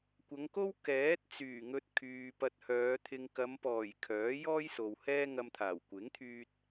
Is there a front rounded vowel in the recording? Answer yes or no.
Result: yes